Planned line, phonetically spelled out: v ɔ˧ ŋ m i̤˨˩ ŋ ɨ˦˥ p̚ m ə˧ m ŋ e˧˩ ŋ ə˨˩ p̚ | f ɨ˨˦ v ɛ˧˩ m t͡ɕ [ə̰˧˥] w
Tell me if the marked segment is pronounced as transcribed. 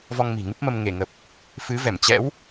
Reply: no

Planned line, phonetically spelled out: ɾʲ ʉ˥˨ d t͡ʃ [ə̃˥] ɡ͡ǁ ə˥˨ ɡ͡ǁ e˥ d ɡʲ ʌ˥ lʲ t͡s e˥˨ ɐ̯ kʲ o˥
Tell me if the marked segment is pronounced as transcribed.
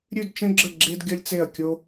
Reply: yes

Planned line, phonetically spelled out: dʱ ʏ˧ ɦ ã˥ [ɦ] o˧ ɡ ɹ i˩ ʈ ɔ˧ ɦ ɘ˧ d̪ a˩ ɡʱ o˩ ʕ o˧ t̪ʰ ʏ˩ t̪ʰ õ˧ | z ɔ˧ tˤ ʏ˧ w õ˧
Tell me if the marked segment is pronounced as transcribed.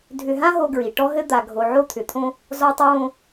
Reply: yes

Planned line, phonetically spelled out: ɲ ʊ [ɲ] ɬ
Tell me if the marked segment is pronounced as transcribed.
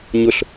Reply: no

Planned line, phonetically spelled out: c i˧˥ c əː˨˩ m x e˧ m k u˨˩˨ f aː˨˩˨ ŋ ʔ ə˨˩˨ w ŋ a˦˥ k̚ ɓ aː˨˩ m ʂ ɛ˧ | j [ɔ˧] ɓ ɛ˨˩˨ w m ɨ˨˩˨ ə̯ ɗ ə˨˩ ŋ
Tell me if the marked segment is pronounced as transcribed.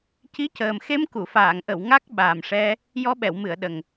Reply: yes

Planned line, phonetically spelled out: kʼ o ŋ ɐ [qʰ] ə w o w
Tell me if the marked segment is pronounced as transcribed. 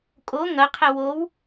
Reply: yes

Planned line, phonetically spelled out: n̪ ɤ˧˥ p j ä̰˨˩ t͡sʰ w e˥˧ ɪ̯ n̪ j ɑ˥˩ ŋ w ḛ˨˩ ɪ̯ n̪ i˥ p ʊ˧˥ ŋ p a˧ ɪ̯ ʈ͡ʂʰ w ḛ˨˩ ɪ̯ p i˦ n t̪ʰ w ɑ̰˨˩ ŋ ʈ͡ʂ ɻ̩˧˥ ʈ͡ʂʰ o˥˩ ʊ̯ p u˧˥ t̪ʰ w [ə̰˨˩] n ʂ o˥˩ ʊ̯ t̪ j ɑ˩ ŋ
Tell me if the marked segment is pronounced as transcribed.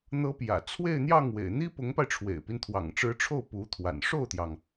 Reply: no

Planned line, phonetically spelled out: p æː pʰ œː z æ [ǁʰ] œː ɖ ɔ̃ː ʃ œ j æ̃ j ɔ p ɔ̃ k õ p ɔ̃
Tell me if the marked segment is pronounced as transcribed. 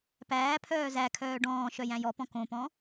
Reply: no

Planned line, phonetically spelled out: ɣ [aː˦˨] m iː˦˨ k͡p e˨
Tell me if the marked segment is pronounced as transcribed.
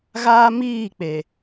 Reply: no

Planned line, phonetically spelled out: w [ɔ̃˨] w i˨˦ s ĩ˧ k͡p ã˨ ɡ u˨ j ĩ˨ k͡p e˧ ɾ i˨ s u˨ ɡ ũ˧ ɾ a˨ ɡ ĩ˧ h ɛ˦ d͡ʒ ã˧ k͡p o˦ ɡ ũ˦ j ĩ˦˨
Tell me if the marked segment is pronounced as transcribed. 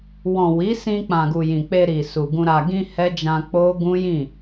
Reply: yes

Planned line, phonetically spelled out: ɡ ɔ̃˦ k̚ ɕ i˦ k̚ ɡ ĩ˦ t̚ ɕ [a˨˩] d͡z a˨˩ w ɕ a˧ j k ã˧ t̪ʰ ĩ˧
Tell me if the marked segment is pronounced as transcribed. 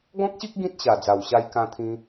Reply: yes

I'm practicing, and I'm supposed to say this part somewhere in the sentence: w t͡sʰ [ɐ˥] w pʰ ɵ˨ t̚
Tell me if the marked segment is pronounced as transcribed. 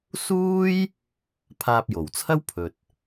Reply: yes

